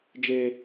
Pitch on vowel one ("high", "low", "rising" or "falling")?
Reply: low